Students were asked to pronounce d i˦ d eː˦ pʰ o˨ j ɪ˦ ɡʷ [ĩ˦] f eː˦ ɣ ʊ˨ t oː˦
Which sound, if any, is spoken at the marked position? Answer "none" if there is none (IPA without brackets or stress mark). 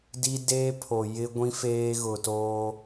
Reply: ĩ˦